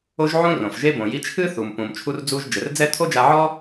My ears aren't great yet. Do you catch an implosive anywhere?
no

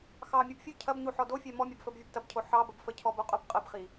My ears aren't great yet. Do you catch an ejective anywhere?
yes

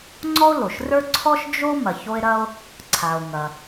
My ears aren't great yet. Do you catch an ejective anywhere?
no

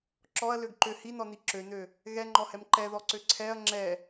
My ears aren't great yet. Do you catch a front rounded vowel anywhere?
yes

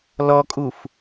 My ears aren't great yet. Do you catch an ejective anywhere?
yes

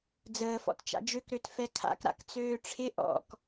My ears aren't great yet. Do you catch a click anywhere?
no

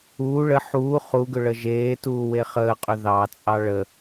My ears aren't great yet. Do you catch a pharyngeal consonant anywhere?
yes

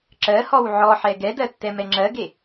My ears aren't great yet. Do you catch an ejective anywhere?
no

